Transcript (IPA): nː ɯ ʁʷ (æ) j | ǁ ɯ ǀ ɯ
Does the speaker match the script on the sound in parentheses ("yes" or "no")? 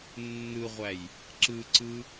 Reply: yes